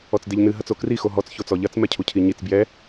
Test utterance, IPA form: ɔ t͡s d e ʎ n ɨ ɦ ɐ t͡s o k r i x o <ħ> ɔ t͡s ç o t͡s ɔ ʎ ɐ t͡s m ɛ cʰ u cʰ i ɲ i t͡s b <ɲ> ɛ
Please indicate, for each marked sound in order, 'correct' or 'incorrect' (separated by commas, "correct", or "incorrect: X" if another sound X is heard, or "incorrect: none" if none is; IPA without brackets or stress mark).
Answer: incorrect: ɦ, incorrect: j